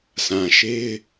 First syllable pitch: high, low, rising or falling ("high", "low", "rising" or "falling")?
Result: low